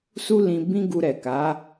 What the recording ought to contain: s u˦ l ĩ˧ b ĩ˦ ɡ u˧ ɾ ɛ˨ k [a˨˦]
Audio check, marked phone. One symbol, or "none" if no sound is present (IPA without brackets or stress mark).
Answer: a˨˦